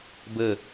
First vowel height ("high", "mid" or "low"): mid